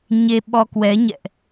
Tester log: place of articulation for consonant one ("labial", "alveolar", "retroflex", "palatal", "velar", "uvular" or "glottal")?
palatal